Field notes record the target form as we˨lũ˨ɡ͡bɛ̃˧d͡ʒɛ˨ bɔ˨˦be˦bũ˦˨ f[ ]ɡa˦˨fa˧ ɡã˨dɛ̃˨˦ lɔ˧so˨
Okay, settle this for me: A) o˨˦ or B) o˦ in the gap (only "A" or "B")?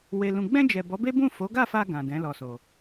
A